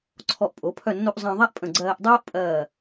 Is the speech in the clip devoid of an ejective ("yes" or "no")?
no